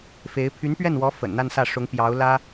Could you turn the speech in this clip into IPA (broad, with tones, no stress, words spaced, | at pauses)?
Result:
fe˧˥ɪ̯ pʰy˧˥npɥɛ˥˩nwɔ˧˥ fə̰˨˩nn̪a˥˧nsä˥˩ʂʊ˧˥ŋ pjɑ˧˥ʊ̯ lä˥